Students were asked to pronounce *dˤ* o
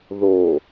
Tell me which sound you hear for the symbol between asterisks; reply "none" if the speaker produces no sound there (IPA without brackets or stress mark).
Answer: ð